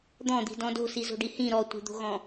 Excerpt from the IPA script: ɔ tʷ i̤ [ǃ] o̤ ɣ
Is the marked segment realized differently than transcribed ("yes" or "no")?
yes